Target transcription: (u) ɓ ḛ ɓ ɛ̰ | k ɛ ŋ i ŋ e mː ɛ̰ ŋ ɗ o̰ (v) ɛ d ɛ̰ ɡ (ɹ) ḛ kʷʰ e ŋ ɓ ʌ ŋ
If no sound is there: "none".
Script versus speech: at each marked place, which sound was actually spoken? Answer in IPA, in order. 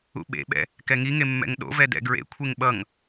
ṵ, v, ɹ

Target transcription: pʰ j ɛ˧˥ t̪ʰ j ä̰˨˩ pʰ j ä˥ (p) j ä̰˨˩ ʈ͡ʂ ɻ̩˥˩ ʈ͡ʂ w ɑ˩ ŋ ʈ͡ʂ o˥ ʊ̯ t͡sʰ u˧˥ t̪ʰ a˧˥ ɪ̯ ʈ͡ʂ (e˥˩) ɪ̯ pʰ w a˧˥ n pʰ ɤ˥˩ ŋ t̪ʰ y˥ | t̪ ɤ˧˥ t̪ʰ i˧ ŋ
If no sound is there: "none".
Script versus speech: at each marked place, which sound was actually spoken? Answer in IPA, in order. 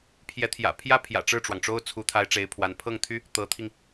pʰ, e˧˥

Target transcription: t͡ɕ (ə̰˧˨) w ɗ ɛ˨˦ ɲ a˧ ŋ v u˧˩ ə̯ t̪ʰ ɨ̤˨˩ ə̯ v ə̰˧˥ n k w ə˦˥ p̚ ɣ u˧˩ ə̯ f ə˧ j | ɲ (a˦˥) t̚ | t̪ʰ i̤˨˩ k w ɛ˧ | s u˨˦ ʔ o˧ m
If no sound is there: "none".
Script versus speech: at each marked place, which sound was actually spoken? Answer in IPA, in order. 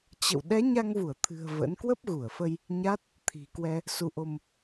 ə̰˧˨, a˦˥

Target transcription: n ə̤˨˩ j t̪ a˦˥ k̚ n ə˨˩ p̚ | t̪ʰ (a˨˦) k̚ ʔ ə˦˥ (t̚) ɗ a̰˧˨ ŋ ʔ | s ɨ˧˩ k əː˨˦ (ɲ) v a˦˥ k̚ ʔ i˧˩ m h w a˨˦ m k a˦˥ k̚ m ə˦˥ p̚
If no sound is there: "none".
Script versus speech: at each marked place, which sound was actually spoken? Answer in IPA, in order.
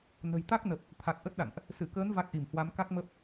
a˨˩, t̚, n

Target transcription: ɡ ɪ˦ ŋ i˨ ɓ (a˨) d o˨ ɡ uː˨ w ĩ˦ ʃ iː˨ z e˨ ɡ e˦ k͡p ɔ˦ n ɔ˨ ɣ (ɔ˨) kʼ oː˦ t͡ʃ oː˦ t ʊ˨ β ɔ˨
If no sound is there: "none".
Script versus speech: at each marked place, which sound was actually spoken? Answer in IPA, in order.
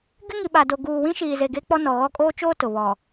a˨, ɔ˦

